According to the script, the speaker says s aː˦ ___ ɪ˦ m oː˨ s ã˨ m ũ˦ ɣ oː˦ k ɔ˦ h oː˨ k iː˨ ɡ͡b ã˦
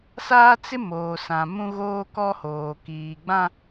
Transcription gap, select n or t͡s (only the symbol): t͡s